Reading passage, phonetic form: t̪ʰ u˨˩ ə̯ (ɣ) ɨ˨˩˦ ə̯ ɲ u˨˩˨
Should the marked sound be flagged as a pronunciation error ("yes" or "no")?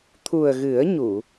no